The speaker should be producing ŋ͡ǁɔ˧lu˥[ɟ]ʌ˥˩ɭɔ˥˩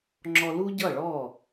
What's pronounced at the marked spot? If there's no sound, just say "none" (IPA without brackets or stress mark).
ɟ